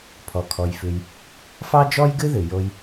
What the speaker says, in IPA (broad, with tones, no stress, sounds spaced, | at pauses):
pʰ ɔ˩ kʰ ɔ˩ j f ʉ˩ j | f ɑ˥ d͡ʒ ɔ˥ j ɡ ɨ˥ ð ɨ˩ j o˧ j